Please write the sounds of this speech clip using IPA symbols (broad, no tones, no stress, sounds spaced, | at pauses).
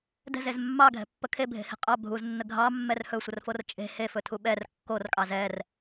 d ɛ̤ z e z mː ɑ ɡʱ ɛ̤ pː ə kʰ e bʱ e̤ h e̤ qʼ ɑ bʱ u z nː ə ɡʱ ɑ mː ɛ r h ɵ sʷ ə r f o r t͡ʃʼ e̤ h e f ɵ tʰ u ɓ ɛ r kː o r kʼ ɑ z ɛ r